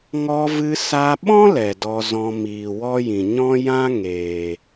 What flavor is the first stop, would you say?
implosive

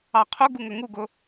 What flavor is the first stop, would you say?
aspirated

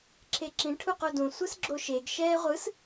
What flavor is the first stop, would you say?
click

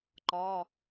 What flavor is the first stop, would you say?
click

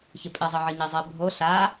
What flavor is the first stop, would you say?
ejective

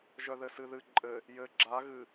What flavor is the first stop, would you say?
click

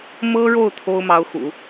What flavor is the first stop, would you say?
aspirated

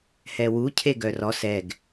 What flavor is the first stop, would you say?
aspirated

